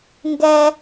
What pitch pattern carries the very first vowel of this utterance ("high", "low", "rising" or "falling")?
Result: high